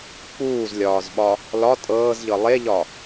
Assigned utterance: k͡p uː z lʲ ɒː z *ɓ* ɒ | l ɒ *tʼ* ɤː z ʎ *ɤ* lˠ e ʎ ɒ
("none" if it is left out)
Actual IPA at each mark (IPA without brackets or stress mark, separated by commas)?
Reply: ɓ, tʼ, ɤ